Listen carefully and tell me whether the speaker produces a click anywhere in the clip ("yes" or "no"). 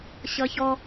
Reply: no